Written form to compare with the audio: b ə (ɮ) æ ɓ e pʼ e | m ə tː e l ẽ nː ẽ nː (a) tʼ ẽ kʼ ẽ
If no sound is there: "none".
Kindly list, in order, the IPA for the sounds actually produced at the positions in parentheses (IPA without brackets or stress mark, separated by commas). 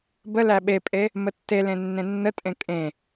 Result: l, ə